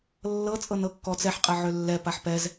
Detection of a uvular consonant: present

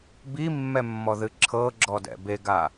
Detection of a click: present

